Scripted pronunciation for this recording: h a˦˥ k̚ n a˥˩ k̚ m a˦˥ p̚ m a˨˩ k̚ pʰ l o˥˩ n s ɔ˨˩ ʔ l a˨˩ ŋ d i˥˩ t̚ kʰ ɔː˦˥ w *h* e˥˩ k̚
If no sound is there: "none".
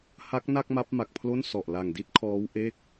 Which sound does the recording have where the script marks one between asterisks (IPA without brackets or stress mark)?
ʔ